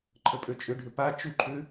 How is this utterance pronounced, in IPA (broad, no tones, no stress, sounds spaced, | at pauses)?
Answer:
ǃʰ ə pʼ ø t͡ʃʼ ʏ ɖʱ ʏ p a t͡ʃ u ǃʰ ʏ